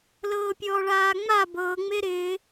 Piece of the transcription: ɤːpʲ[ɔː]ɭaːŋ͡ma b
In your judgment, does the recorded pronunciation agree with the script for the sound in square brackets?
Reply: yes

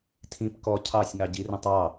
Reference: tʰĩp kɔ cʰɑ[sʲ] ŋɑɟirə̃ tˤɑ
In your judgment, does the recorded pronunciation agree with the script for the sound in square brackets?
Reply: yes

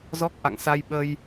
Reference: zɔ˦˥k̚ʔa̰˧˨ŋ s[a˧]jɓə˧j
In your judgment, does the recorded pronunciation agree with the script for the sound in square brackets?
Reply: yes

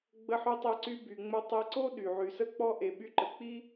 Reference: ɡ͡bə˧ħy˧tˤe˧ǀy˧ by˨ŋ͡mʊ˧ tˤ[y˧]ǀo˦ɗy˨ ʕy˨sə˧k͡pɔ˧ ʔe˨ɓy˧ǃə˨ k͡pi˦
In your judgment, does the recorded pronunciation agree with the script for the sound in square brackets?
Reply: no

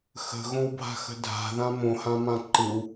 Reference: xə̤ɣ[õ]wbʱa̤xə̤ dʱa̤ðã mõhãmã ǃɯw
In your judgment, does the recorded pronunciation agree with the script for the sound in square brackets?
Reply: yes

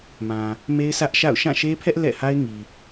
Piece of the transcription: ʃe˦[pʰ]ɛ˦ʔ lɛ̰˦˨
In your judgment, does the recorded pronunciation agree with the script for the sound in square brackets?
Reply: yes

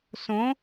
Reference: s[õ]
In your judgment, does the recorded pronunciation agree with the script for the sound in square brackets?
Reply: yes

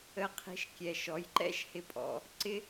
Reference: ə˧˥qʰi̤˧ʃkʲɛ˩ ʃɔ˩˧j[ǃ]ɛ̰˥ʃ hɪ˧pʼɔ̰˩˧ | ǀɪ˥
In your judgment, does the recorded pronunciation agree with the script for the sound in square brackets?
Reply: yes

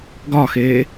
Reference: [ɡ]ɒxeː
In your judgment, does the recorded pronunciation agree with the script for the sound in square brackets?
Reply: yes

